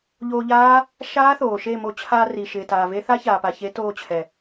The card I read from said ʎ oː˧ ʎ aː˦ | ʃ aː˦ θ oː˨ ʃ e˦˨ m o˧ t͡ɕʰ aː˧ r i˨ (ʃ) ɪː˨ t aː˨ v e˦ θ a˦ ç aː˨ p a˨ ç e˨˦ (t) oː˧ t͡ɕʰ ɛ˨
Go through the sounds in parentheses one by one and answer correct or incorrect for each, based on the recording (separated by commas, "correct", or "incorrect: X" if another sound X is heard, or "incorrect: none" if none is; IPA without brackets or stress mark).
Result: correct, correct